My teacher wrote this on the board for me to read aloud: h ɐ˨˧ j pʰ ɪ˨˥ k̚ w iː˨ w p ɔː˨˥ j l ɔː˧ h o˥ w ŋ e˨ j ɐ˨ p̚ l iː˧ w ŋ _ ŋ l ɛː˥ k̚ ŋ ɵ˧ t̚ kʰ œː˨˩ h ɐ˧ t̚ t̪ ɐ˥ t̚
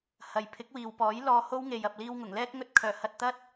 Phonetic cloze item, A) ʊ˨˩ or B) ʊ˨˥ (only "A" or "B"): A